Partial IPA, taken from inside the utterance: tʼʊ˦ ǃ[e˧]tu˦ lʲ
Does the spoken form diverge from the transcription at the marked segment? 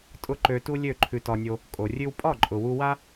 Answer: yes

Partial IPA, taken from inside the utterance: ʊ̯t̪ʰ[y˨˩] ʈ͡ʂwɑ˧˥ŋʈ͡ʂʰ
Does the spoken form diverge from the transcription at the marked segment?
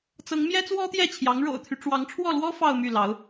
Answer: yes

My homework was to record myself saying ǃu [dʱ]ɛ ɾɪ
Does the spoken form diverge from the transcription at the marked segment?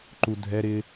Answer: no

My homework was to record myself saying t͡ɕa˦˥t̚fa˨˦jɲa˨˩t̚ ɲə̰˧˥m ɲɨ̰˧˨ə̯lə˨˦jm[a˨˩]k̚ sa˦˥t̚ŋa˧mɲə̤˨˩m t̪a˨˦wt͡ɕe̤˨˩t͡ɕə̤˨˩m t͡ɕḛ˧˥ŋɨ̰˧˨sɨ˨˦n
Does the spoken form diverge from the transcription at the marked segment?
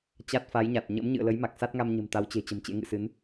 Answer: no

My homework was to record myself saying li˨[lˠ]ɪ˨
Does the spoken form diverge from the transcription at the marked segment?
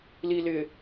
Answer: yes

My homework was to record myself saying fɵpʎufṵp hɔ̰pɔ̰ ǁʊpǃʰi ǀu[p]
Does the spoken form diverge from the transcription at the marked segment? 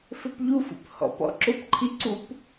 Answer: no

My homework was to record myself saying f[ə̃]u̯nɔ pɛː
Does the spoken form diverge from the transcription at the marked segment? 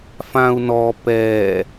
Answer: yes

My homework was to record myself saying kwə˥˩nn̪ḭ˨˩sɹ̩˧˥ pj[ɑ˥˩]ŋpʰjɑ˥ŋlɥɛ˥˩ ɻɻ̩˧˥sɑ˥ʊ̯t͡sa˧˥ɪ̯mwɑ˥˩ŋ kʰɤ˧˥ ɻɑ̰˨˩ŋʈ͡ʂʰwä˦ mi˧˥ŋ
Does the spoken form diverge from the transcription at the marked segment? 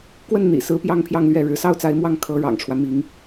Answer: yes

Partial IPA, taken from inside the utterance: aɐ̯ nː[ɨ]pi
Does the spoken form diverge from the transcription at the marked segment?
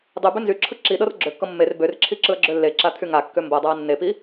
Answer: yes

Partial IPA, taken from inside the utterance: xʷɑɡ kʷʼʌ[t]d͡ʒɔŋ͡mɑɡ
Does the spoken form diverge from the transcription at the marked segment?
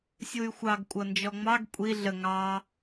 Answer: yes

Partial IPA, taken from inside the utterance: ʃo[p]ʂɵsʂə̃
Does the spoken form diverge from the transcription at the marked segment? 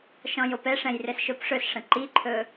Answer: no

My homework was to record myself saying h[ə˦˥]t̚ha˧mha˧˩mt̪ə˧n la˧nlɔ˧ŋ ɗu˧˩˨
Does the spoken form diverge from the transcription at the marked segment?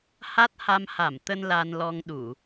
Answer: yes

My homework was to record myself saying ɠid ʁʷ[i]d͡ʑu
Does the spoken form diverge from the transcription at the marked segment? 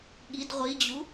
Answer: no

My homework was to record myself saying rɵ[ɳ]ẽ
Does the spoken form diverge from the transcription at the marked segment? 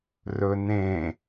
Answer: yes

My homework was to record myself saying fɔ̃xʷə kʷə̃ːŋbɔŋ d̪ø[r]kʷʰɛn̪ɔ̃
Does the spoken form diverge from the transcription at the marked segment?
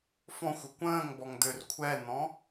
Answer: no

